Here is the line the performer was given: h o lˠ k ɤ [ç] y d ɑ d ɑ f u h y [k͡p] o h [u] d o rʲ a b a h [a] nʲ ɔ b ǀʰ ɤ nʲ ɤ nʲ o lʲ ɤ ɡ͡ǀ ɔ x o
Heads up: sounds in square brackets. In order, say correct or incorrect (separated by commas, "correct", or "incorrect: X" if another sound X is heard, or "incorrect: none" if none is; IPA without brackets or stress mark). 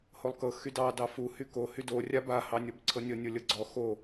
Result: incorrect: x, incorrect: k, incorrect: y, incorrect: ɑ